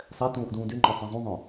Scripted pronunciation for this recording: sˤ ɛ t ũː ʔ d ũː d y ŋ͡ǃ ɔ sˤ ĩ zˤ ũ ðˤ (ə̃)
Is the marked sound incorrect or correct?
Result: incorrect